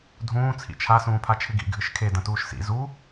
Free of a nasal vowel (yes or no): no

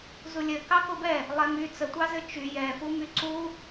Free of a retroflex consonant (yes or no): yes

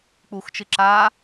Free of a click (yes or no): no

